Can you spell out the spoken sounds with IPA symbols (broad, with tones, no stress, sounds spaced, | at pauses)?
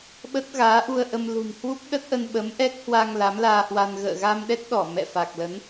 ɓ ə˦˥ t̚ ɣ aː˨˦ ʔ u˧ ə̯ ʔ ə˧ m l ṳ˨˩ n h w u˦˥ p̚ ɗ ə˦˥ t̚ ʔ ə˧ n ɓ ə˨˦ m ʔ ɛ˦˥ k̚ h w a˧ ŋ l a˨˦ m l aː˧ h w a˧ n ɣ ə̰ː˧˨ ɣ a˧ m ɗ ɛ˦˥ t̚ ɗ ɔ˧˩ m ɛ̰˧˨ f a˨˩ k̚ l ə˨˦ n